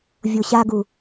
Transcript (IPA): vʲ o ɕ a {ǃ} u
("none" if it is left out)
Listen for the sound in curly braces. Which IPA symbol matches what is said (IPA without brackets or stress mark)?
ɡ